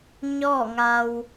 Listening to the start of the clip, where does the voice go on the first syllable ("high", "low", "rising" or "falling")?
falling